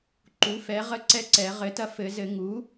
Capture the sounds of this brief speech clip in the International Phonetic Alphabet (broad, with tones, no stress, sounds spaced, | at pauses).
ǃ u˩˥ f ɛ˩˥ ʁ ə˦˥ ǀ ɛ˦˥ ǀ ɛ˨˩˦ ʁ ɘ˩˥ t ɐ˧ f ɘ˨˩˦ z ɘ˨˩˦ ŋ u˩˥